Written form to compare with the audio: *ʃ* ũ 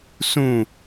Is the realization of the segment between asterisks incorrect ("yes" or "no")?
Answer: yes